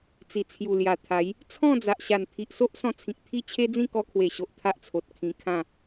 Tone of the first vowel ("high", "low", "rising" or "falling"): low